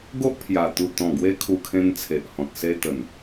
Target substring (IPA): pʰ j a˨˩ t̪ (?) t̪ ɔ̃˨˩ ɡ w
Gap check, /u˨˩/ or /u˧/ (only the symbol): u˨˩